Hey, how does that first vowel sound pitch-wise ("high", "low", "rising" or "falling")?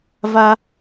high